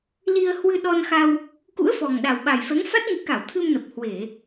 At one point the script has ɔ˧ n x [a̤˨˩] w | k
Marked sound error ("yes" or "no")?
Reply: yes